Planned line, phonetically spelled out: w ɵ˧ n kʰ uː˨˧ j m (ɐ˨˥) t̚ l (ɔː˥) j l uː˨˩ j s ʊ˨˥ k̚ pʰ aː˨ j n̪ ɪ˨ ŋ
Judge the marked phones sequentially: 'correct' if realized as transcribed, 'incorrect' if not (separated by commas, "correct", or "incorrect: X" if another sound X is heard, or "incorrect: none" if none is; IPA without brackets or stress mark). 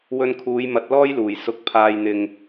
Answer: correct, correct